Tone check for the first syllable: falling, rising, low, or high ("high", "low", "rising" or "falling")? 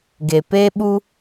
low